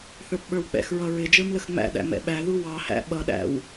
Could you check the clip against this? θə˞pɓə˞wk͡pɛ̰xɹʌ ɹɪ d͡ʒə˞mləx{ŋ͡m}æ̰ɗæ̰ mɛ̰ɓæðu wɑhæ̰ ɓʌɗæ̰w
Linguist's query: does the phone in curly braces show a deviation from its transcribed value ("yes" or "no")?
no